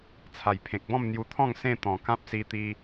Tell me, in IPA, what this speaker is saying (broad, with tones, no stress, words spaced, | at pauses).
t͡sʰa˨˩jpʰẽ˨k̚bɔ̃˥˧m n̪ju˧t̪ʰɔ̃˥˧ŋ sẽ˥˧ t̪ɔ̃˨˩ kã˦p̚si˧t̪i˧